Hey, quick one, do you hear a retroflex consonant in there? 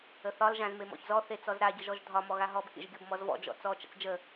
no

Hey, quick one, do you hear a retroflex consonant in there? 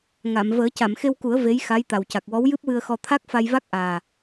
no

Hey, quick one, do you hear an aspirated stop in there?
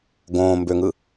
no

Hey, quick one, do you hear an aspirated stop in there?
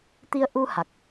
no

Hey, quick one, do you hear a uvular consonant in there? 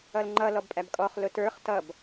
yes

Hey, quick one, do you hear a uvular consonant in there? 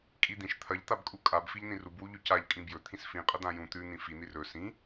yes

